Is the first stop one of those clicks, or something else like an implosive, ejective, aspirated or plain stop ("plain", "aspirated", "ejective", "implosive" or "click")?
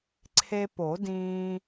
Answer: click